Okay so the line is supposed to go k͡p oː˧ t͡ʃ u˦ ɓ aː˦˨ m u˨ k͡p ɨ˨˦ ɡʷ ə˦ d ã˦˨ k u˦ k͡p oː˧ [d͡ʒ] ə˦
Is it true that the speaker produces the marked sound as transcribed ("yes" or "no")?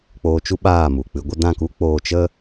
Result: no